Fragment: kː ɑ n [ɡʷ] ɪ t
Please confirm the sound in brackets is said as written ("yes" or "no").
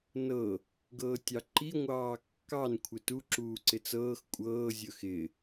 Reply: no